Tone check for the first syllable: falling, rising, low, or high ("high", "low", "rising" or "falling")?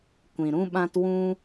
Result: low